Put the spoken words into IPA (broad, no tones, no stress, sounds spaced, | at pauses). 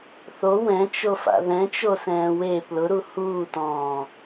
θ o w ɛ̃ t͡ʃ o f a̰ ð ɛ̃ t͡ʃ o s ɛ̃ː w e p l ʊ ɾ u h uː t ɔ̃ː